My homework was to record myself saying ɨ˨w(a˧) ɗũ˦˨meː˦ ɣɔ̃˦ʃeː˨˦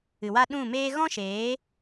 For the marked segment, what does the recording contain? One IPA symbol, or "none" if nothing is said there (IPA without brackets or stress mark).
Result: a˦